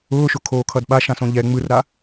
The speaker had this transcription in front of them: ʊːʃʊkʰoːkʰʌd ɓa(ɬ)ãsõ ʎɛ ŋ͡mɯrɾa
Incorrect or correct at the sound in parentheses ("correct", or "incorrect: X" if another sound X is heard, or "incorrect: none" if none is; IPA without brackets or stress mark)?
incorrect: ʃ